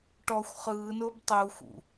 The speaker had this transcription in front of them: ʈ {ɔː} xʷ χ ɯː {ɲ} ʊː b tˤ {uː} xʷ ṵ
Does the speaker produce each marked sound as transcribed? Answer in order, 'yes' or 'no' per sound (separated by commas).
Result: no, no, yes